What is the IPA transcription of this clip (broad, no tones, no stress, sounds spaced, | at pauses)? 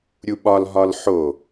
ɾʲ u ɓ ɒ l ɦ ɒ l ħ o